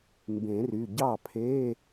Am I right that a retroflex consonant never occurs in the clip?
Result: yes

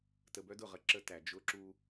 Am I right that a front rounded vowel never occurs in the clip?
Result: no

